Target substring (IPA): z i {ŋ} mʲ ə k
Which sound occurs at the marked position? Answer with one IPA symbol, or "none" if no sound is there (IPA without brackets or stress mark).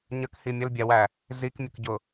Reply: k